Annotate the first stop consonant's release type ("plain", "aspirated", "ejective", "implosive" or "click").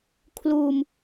aspirated